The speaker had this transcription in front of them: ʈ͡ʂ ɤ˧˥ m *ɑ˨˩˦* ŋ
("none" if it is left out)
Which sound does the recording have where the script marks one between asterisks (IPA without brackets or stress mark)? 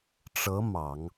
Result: ɑ˨˩˦